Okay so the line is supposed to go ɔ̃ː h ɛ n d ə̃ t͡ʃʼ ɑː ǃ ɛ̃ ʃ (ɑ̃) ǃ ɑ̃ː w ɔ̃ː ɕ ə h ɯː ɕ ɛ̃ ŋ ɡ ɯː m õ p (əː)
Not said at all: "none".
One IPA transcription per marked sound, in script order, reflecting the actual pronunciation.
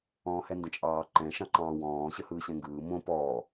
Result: ɑ̃, ɔː

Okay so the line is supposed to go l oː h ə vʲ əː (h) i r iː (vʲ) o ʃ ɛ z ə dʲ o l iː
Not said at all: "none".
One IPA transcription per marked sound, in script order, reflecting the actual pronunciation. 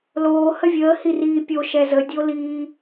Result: h, pʲ

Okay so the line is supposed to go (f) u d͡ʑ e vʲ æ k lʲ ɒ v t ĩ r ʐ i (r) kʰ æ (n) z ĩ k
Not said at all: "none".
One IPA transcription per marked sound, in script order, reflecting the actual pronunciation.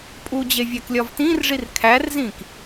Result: pʼ, r, r

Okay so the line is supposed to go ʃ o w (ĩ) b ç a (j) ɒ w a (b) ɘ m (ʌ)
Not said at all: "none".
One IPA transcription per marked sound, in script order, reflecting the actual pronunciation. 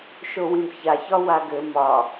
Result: ĩ, ç, ɡ, ɒ

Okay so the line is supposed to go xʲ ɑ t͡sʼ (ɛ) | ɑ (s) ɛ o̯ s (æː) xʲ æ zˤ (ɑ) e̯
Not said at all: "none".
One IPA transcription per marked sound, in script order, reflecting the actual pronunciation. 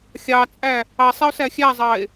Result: æ, sˤ, æ, ɑ

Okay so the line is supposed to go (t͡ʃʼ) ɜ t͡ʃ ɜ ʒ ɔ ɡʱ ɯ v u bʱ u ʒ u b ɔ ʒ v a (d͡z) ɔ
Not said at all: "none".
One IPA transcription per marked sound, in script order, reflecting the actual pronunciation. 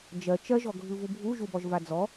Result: d͡ʒ, d͡z

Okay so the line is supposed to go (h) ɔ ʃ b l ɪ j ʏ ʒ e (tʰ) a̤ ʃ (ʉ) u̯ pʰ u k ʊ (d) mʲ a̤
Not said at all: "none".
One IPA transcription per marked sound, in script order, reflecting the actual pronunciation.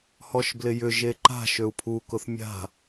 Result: h, ǃ, ø, θ

